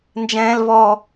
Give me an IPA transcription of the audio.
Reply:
n d͡ʒ ɛ̃ː˦ l v ɔ˦

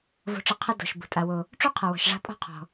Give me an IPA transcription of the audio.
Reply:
v o̤˦ ʈ͡ʂ ɘ˦ qʰ ɘ˦ d ɔ̤˨ ʃ b ṳ˩ tʼ a˨ w o˨ | ʈ͡ʂ u˥ qʰ ɐ˨ w ɔ̤˨ ʃ ʐ a̤˦ pʼ ɔ̤˥ qʰ ɔ̤˨

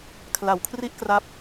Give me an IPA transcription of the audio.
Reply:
kʰ l a˩˦ w kʰ r i˥˩ ʔ k r a˦˥ p̚

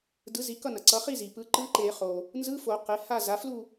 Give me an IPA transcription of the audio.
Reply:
d ɯ˩˥ z i˩˥ k ʌ˥˨ n ʌ˩ ǀ ʌ˩˥ χ i˥˨ z i˩ p ɯ˩˥ ǃ ɯ˧˥˧ ǃ e˨˩˦ χ o˩ | n z ɯ˧˥˧ f o˨˩˦ q e˩˥ h a˥˨ z a˩˥ f l u˥˨

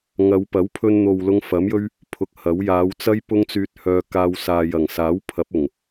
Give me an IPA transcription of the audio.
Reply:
ŋ ɐ˨˧ w p ɐ˨˥ w pʰ ɵ˧ n n̪ o˨ w l ʊ˧ ŋ f ɐ˨˥ m j ɵ˥ ɥ | pʰ ʊ˧ k̚ h ɐ˨˥ w j aː˨˧ w t͡s ɐ˥ j p ʊ˥ ŋ t͡s yː˧ t̚ h œː˧ k aː˧ w s aː˨ j ɐ˨˩ ŋ s aː˨˥ w pʰ ɐ˨˥ p̚ ʊ˨˩ ŋ

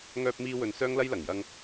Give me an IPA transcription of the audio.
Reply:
ŋ œː˧ p̚ m iː˧ w ɵ˨ n s œː˥ ŋ l ɐ˥ j l ɐ˨˩ ŋ j ɐ˧ ŋ

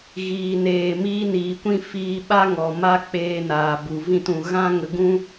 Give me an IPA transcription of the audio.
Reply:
ɣ iː˨ n eː˨ m iː˧ n iː˨ kʷ ĩ˦ f iː˧ ɓ a˦ ŋ ɔ˨ m a˦ k͡p eː˧ n aː˨ b u˨ v ĩ˦˨ t ũ˨ ɣ ã˦ ŋ ə˧ ɡ ũ˦

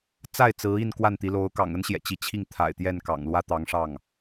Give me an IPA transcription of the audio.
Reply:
t͡s a˥˩ ɪ̯ t͡s ɹ̩˧˥ i˥˧ n k w a˥˩ n t̪ i˧˥ l o˧˥ ʊ̯ k ɑ̰˨˩ ŋ ə˥ n ɕ j ɛ̰˨˩ t͡ɕ i˧˥ t͡ɕʰ i˥˩ ŋ t̪ʰ a̰˨˩ ɪ̯ t̪ j ɛ˥˩ n k ɑ̰˨˩ ŋ l w ä˥ t̪ ɑ˧˥ ŋ ʂ ɑ˥˩ ŋ

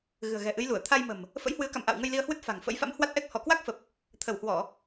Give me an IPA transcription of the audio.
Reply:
ɣ ɨ̤˨˩ ə̯ ɣ ɛ̤˨˩ ʔ ɨ˨˦ j l u˧˩ ə̯ t̪ʰ a˧ j m ə̤˨˩ m | f ə̰˧˥ j h w ɨ˨˦ ə̯ k a̰˧˨ m ʔ a̰˧˨ w ŋ ə˧ j l i˧ ə̯ h w ɨ˦˥ t̚ f a̤˨˩ ŋ f ə̰˧˥ j f a̰˧˥ m h w a˦˥ t̚ ʔ ɛ˦˥ k̚ h ɔ˧˩ k w a˦˥ k̚ f ə˨˩ p̚ | t̪ʰ ə˧˩ w h w ɔ˧˩˨

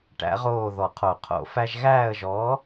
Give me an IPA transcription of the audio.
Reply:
ʈ æ̰˨˥ ʁ oː˦˨ ð ɔ˨˩˦ qʰ o˨˩˦ qʰ o̰˨˩˦ f æ˦ ʒ ɣ æː˦˨ ə̯ ʒ ɔː˨˥

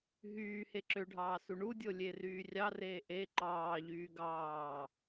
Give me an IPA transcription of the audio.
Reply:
ɦ yː h e ǁ ø ɖʱ ɑː s u ɳ u dʲ o lʲ e r yː rʲ ɑ r eː ʔ e ǃ ɑː ʎ yː ɡ ɑː

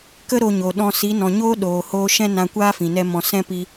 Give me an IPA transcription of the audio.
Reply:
k ə˦ ɾ o˧ ɲ o˨ ɗ ɔ̃˧ s i˨˦ n ɔ̃˨ ɲ oː˦ ɗ oː˨ h oː˧ ʃ ɛ̃˦ n ã˧ kʷ aː˦ f ĩ˨ n ɛ˦ m ɔ̃˧ s ɛ̃˦ p i˧

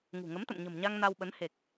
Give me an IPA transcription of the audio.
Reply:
ŋ ṳ˨˩ ŋ ə˨˦ m t̪ ə̰˧˨ m ɲ ə̤˨˩ m ɲ a˧ ŋ n a˧ w ɓ ə˨˦ n h e˨˩ k̚

